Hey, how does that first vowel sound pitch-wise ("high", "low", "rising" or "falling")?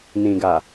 low